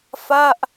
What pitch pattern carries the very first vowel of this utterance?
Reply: falling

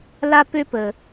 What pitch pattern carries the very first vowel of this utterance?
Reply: high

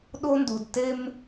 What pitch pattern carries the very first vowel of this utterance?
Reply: high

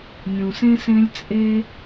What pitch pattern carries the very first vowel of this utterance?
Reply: low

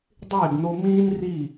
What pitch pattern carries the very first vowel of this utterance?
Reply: falling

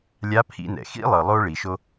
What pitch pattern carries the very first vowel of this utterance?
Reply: rising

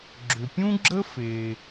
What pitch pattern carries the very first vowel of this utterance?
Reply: low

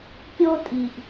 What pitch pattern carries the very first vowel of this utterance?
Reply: high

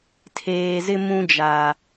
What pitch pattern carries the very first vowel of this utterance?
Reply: low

